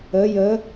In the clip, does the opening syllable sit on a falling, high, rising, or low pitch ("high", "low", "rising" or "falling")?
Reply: rising